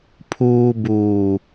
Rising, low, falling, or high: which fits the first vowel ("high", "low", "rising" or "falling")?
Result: low